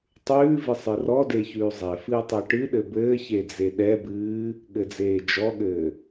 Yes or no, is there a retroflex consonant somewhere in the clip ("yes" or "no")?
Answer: yes